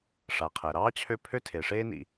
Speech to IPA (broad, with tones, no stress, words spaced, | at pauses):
ʂa˩qʰɛ˩ɾɑː˥t͡ɕʰø˦ pʰø˥tʰe˩ʂeː˥nḭ˨